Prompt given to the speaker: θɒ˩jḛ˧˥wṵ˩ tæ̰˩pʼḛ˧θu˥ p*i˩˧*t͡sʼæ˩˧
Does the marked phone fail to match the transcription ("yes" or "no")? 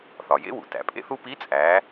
yes